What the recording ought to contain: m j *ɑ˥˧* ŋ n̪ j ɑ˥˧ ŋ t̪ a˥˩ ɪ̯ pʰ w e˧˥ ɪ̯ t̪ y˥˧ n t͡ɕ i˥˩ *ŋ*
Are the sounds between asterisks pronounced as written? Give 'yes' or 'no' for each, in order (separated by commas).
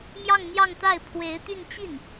yes, no